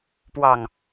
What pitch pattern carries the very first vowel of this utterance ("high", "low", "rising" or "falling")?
low